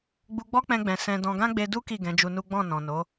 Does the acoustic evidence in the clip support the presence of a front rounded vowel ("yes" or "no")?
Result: no